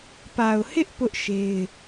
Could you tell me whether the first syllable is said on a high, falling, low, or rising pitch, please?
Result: low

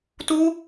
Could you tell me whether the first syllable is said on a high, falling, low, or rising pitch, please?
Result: high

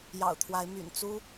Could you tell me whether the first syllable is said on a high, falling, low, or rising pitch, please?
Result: low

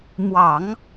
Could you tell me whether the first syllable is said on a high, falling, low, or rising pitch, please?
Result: low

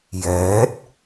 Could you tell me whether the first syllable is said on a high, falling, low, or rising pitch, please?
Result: rising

